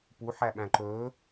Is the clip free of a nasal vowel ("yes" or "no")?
no